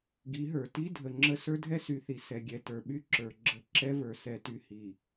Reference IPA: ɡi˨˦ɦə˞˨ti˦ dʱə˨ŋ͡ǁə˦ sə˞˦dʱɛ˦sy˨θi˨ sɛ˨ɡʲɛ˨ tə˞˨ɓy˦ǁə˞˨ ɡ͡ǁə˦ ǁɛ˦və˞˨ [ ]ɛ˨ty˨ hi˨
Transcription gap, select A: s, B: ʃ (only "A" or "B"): A